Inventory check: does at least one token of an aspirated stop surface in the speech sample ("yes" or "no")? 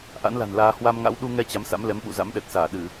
no